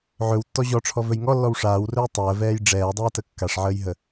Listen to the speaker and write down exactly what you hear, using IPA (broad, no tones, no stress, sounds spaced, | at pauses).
ʕ ɵ w tː ɔ ʑ ɔ ʈ͡ʂʰ ɔ v ɵ j ŋ ɔ lː ɔ w ʂ aː w r ɵ j tˤ əː v ɛː j ɖ͡ʐ ɛː dˤ ɛː t ə kː a ʂ ʕ əː j ɦ ə